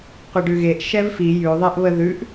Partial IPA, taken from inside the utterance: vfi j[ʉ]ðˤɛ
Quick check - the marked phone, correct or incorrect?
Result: correct